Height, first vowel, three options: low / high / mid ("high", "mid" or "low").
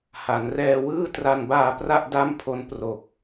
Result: low